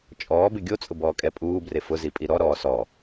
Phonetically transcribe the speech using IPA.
t͡ʃʼ ɔː b ɪ ɡʲ o t͡sʼ ʊ b ɔː kʼ ɛ pʼ uː b r e f ʊ z i pʼ i ɾ ɔ ɾ ɔː s ɔ

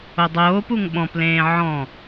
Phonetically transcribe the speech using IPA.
o dˤ oː p u ŋ ɓ ɔ̃ p l ẽː ʕ ɔ̃

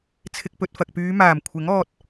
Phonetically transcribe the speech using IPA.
t͡sʰ ɪ˧ k̚ p ɵ˧ t̚ f ɐ˨ k̚ p yː˨˧ m aː˨˩ m kʷʰ ɪ˨˥ ŋ ɔː˧ t̚

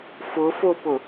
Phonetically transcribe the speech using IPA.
f ʊ f o p ʊ

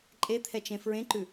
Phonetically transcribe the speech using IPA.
ǃʼ e t̪ʰ ɛ t͡ʃ ẽ f ɹ ẽ ǃ ʉ

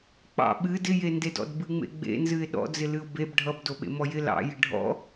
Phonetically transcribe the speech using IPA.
k͡p ɑ̰ ɓ ɨ d ɪ j e n d e d ɔ̰ d b ɨ ŋ͡m ḛ ɡ͡b ḛ n z ɨ ɪ̯ ɗ ɔ̰ d͡z ɪ l ɨ ʊ̯ b e b ɖʱ ʌ b d o ɓ ḛ m ɔ j ɪ l ɑ̰ j ɪ ɖʱ ɔ̰

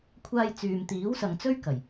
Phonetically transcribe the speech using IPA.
kʷʰ aː˧ j t͡s yː˨ m t̪ iː˨˥ w s ɐ˨ ŋ t͡s ɵ˥ ɥ k ɐ˨˩ j

